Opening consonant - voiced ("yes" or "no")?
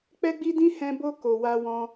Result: no